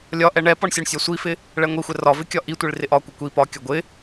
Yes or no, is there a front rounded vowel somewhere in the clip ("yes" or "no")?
no